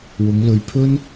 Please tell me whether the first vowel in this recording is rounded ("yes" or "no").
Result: yes